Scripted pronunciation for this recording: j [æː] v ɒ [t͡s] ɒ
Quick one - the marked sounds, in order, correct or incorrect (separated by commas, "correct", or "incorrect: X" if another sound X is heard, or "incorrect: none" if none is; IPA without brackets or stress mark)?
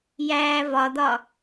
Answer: correct, incorrect: d̪